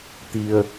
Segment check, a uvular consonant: absent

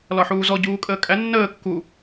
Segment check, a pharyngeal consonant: present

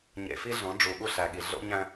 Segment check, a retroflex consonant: present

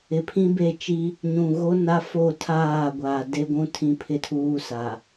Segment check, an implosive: absent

